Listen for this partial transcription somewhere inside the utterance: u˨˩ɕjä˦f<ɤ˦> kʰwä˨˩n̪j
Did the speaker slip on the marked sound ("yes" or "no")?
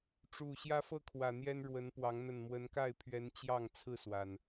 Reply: no